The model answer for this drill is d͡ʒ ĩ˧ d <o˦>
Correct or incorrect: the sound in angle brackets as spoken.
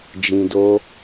correct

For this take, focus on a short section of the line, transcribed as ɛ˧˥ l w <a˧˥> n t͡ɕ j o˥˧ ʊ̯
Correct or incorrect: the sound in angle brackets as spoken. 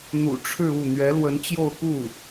incorrect: ə˧˥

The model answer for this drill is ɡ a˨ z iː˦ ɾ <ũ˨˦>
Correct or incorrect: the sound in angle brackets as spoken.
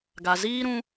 incorrect: ũ˦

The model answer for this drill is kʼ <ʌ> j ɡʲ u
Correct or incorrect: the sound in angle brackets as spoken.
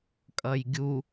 correct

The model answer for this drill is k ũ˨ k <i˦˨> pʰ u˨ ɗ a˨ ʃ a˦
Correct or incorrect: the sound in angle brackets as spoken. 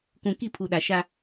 correct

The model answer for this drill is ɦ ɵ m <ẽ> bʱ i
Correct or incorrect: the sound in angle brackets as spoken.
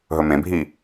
correct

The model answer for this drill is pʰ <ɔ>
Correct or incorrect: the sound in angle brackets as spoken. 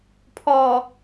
correct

